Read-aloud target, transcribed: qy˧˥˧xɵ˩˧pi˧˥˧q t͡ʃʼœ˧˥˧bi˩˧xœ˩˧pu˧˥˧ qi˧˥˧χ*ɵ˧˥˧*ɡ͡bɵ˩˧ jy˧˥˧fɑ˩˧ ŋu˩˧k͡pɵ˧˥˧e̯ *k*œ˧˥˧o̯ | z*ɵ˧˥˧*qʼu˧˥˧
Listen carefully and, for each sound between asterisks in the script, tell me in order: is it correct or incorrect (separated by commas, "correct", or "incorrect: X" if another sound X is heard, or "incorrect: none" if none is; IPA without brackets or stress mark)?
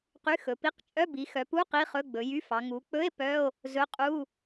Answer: correct, incorrect: p, correct